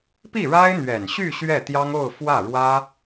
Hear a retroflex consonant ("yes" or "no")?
yes